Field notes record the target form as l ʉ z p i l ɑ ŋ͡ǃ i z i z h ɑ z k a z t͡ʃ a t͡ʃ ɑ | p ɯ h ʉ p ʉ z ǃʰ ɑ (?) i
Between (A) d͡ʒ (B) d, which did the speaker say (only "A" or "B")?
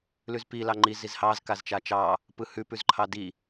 B